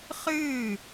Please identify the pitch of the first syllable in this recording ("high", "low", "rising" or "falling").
falling